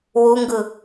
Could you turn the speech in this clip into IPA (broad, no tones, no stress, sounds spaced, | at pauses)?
w u ŋ ɡ ɯ